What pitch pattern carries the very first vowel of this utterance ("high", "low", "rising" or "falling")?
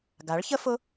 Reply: rising